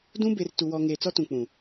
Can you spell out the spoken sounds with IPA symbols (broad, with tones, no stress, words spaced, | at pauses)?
dũ˦be˨r tu˨wɔ˨ ŋeː˨t͡sɔ˦tũ˨ k͡pũ˨